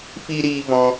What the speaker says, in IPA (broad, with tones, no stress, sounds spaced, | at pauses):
f i˧ ɾ iː˧ v ɔ̃˧